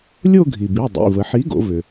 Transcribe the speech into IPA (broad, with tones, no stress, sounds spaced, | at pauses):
lʲ o˥˧ ɡʱ i˩ b i˩˧˩ dˤ ḭ˩˧˩ v ə˩˧ ħ i˨˥ ɡ o̰˩˧ v ʏ˩